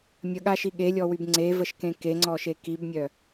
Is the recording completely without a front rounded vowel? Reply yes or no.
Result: no